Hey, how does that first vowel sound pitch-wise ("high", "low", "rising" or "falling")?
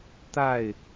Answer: falling